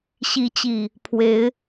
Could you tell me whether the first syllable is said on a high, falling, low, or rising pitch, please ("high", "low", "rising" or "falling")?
rising